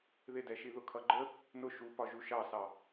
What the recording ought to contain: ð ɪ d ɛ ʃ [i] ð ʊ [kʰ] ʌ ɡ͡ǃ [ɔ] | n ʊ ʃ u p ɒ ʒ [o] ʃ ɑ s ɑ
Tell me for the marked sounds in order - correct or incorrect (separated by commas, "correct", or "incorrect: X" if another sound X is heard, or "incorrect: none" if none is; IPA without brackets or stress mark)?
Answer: correct, correct, incorrect: ə, incorrect: u